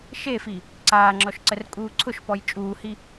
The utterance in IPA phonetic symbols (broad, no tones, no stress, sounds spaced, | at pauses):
ʃ e f i | ǀ aː ŋ͡ǁ ɔ ʃ ǀ ə r kʼ uː ǀʰ ʊ ʃ p ɔ j t͡ʃʼ uː h i